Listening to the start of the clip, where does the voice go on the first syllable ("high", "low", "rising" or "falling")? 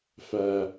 low